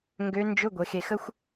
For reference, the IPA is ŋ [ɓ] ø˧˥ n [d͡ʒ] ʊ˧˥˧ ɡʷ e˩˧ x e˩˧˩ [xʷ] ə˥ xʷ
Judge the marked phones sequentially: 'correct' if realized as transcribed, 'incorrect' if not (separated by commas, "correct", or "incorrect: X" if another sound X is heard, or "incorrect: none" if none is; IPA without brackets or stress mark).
incorrect: ɡ, correct, incorrect: x